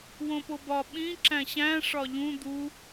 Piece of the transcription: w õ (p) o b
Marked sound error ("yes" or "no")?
no